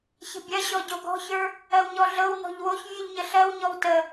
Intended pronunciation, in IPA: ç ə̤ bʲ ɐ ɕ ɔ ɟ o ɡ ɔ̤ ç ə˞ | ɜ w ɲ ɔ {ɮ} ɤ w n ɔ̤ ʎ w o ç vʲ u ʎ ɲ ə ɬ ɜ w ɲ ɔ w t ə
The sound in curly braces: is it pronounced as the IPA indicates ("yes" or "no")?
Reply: yes